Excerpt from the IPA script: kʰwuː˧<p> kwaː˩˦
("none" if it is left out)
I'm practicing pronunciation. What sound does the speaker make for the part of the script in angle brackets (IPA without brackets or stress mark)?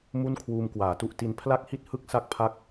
m